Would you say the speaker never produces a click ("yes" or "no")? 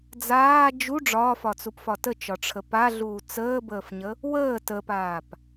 yes